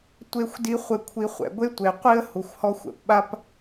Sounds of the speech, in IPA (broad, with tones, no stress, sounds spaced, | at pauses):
tʷ e˧ xʷ d i˧ χʷ ɪ˧ kʷʰ i˧ χʷ ɛ̰˩ ɡʷ e˥ tʷ e˩ qʷ i˥ ə̯ h u˩ xʷ h ɔ˧ xʷ ɛ̰˩ p ɓ a˥ p